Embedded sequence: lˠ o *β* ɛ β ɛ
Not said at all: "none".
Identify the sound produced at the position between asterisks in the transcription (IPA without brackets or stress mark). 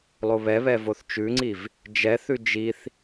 β